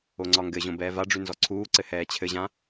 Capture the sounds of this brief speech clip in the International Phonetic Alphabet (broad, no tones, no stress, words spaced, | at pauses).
oŋ͡ǀɒŋɡɘʑõ bɛːvaɖ͡ʐʉ nzɔǀʰuːǀɘ hɛːt͡ɕʰɘʑã